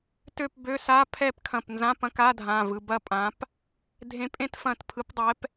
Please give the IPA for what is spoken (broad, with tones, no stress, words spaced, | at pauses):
tø˥˧pbø˧˥˧ sa˧˥˧pʰɛ˥˧p kʰɐ̃˧˩pnzã˧˥˧ pɐ̃˧˥˧ka˧˥˧dʱã˩˧˩ vɯ˩˧˩bɐ˥˧pʼã˨˦p | dʱẽ˨˦pʼẽ˥˧tfɐ̃˧˩t pʰɯ˨˦pdˤɛ˨˦p